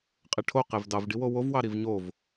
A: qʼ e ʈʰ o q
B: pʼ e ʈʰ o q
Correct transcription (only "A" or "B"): A